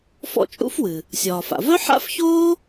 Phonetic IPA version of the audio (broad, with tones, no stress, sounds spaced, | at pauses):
f ɔ̰˥ t͡ʃʼ ṵ˥ f w ɨ˩ | sʲ ɒː˩ f a̰˩ v œ˥ ħ a̰˥ f ç oː˥